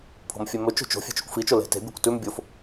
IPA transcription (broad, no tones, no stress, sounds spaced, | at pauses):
pʰ o̤ m fʲ e m ɵ t͡ʃ o̤ t͡ʃ o̤ fʲ e̤ t͡ʃ o̤ kʷ f i t͡ʃ o l e̤ t e̤ bʲ ɵ kʷ t ʉ m bʲ o f